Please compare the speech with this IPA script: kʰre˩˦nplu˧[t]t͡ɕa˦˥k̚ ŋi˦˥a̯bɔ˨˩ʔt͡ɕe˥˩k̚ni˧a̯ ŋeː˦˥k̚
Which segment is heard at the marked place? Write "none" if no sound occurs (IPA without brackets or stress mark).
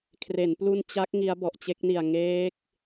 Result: n